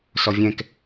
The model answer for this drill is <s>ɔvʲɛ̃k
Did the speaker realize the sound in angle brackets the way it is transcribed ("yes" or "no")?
yes